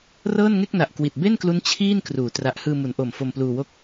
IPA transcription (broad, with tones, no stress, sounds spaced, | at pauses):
r ɤː˥˩ n ŋ e˥˩ k̚ n a˨˩ ʔ k w i˨˩ t̚ b e˥˩ n k l u˦˥ n t͡ɕʰ iː˥˩ n k r uː˩˦ t r a˨˩ ʔ h ɯː˧ m u˩˦ n ʔ o˨˩ m f o˧ m p l uː˧ w o˥˩ k̚